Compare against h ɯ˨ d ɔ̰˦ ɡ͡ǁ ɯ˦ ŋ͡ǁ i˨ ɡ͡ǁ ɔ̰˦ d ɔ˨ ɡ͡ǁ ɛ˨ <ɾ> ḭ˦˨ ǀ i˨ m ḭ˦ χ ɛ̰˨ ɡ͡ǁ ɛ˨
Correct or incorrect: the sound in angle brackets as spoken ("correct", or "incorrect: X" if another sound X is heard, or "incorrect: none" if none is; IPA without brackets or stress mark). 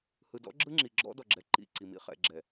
incorrect: ǃ